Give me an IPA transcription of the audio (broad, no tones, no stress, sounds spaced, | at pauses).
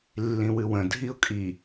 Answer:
lː ĩ w ɨ w ə̃ dʱ i ʊ̯ kʼ i